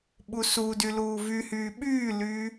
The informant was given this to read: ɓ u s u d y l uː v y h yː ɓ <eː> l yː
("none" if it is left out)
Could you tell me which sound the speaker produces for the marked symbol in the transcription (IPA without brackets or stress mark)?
yː